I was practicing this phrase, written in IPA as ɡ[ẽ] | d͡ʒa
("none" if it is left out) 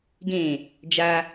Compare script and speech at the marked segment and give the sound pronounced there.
ẽ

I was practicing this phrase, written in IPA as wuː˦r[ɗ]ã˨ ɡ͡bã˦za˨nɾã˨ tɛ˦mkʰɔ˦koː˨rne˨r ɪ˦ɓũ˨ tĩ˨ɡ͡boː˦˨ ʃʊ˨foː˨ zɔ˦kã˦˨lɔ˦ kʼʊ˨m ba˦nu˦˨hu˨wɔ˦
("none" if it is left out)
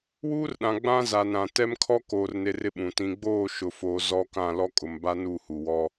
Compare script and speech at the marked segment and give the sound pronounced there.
ɗ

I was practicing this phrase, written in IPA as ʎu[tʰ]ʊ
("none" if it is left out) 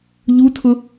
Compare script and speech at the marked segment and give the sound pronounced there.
tʰ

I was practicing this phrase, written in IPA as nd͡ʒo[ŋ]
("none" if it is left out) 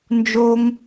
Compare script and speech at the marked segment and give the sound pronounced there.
ŋ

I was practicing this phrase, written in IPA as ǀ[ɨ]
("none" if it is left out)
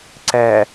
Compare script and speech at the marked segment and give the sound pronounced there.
ɛ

